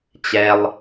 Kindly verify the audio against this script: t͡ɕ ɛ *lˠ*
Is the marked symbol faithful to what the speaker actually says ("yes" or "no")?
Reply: yes